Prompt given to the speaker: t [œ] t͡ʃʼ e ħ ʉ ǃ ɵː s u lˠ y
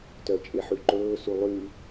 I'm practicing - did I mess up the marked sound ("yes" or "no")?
no